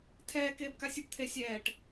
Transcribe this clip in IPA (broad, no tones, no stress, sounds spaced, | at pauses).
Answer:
tʰ ɛː k eː b k a sʲ u b t̪ʰ e sʲ ɛː ʈ